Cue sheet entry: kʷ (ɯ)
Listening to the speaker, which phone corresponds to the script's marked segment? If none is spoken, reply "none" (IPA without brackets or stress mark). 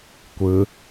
ɯ